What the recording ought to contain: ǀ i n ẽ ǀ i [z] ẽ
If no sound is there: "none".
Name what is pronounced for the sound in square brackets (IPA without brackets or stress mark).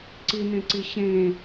ɕ